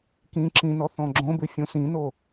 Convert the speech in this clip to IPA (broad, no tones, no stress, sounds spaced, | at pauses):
k ĩ ǁ ĩ n ɔ θ ɔ̃ ɡ͡ǁ õ b ʉ fʲ õ s ĩ n o